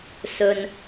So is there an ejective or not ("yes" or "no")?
no